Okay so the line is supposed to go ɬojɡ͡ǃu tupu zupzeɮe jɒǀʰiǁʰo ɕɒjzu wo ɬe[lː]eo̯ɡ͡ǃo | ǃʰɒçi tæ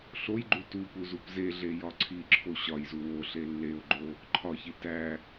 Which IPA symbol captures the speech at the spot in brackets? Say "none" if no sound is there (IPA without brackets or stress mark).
lː